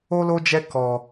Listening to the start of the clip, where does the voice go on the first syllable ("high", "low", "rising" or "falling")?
high